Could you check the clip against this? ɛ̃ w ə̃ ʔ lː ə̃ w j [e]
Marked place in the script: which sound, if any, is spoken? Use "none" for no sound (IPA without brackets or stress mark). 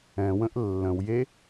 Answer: e